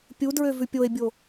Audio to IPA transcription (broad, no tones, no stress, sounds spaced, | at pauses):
pʲ u d ɹ ø v ʉ pʲ o e̯ bʲ o